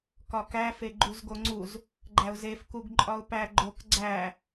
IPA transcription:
k ɒ k æ f e ɡ͡ǃ u z ɡ o ŋ͡ǀ u z | ɡ͡ǃ æ ʊ̯ z e f k u ɡ ǃʼ ɒ ʊ̯ p æ ɡ͡ǃ o k ɡ͡ǀ æ

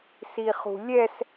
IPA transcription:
s i χ ṳ lʲ ɛ s

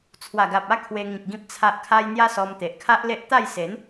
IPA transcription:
t͡sʰ w a˨˩ ɡ a˨ p̚ a˥˧ kʰ w e˧ ŋ ĩ˨ k̚ ɡ ĩ˨ p̚ t͡sʰ a˨ ʔ kʰ a˧ j n̪ j a˦ s ɔ˧ m t̪ e˨ ʔ kʰ a˦ ʔ l e˦ ʔ t̪ a˥˧ j s e˨˦ n

